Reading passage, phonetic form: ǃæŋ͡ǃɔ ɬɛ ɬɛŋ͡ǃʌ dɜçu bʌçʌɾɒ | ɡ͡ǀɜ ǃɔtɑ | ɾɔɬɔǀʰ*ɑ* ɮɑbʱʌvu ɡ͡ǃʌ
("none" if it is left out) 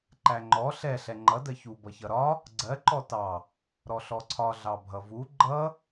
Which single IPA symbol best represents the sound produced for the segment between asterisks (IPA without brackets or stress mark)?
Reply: ɒ